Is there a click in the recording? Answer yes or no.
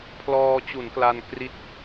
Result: no